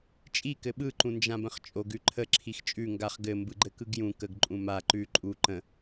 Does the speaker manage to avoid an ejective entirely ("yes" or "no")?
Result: no